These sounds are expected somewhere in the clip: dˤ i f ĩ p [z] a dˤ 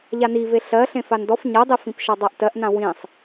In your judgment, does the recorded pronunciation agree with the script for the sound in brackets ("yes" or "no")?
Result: no